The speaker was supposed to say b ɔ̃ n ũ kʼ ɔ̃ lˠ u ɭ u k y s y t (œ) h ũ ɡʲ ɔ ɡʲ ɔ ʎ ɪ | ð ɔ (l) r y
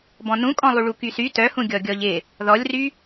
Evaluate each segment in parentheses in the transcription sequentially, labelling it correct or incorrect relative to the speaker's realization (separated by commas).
correct, incorrect